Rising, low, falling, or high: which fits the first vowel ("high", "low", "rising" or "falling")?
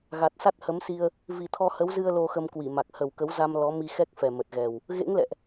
low